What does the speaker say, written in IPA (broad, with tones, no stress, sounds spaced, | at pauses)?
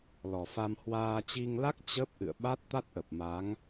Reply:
l ɔ˨˩ f a˧ m h w aː˧ t͡ɕ i˧ ŋ l a˦˥ k̚ t͡ɕ ə˦˥ p̚ ʔ ɨ̰˧˨ ə̯ ɓ a˦˥ t̚ t̪ a˦˥ t̚ ʔ ə˨˩ p̚ m a˨˦ ŋ